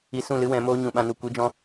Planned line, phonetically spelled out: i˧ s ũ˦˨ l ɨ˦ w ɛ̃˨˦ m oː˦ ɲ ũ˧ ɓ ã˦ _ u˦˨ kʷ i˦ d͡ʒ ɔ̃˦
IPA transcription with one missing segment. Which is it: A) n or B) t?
A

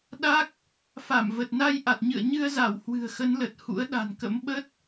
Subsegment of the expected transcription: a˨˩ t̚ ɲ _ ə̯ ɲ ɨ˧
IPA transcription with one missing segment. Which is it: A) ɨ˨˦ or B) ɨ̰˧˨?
B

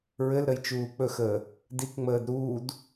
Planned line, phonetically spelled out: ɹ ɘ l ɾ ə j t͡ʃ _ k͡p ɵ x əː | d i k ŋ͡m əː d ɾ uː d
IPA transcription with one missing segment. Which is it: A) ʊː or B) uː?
B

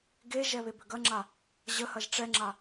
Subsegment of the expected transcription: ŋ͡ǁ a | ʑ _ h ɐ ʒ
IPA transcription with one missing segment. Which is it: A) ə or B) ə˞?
A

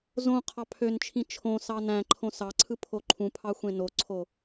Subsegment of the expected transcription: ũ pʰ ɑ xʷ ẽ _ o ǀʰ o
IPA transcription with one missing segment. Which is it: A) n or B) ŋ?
A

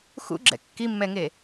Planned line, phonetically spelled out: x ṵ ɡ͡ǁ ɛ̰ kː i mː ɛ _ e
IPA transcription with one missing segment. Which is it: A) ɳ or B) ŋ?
B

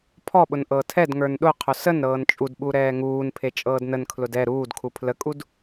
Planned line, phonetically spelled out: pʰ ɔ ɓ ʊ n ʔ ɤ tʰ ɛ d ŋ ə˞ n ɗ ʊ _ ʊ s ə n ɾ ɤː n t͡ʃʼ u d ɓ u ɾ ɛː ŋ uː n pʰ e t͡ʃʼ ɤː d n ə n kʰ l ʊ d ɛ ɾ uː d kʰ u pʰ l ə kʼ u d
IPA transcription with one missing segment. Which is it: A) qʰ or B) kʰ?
A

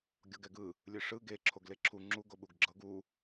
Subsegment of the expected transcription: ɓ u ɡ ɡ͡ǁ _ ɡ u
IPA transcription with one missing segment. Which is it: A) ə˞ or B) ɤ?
B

